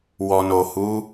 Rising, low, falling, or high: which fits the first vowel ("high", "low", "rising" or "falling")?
low